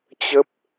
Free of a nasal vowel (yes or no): yes